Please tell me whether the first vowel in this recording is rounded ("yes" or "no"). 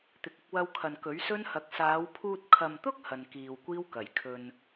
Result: no